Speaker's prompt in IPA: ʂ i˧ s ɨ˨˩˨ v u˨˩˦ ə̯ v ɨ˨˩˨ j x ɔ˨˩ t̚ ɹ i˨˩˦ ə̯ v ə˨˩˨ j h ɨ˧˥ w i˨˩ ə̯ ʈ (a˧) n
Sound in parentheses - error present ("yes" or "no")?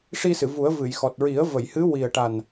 yes